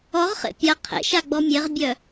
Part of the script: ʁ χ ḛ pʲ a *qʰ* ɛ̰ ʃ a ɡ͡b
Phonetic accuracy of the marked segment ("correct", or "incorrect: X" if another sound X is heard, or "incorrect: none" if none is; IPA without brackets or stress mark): correct